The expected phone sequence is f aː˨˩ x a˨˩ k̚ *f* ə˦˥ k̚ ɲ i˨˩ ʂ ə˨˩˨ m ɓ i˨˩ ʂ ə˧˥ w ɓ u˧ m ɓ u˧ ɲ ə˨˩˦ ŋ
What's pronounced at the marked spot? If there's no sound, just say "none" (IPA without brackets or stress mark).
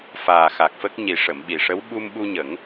f